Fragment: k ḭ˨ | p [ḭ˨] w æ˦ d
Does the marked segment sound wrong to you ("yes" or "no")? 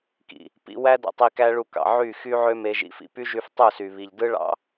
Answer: yes